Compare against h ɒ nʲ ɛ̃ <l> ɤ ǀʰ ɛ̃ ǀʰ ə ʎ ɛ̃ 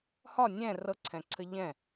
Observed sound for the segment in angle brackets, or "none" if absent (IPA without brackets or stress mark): r